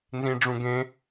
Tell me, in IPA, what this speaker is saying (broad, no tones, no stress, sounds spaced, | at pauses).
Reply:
n z ĩ ɖ͡ʐ ũ ɡ ẽ